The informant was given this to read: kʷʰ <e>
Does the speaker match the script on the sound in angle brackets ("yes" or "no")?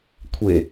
yes